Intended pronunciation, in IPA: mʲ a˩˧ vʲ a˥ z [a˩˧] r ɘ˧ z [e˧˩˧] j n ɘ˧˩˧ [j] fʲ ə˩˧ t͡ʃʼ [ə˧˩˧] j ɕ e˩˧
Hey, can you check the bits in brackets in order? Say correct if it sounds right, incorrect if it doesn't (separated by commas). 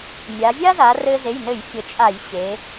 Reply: correct, incorrect, correct, incorrect